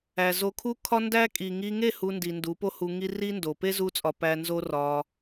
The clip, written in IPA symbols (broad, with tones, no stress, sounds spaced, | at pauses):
æ˨ z o˧ kʰ u˦ kʰ ɒ˦ n d æ˦ kʼ i˨ ŋ i˧ ŋ e˦˨ h u˧ n d i˨ n d u˨˦ p o˦ h u˧ ŋ i˦ r i˦ n d o˨ p e˦ z u˦ t͡sʼ ɒ˧ p æ˧ n z o˦ r ɒ˧